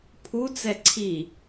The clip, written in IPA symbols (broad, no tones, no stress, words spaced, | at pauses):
pʰut͡sɛ ǀʰi